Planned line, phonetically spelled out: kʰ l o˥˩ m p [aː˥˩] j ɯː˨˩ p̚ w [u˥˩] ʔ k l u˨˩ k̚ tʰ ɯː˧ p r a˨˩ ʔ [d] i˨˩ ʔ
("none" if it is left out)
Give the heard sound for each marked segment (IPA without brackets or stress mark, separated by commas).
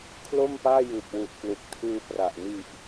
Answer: aː˥˩, u˨˩, n